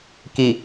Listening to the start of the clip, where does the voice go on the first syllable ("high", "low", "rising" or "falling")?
low